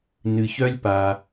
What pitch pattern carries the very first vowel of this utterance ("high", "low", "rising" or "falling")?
low